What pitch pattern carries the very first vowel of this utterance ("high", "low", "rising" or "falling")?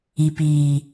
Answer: low